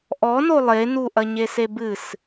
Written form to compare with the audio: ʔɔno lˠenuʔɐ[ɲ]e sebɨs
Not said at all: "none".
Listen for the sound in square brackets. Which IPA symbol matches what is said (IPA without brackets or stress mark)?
ɲ